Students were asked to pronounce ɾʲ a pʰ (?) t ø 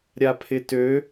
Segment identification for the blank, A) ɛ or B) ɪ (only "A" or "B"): B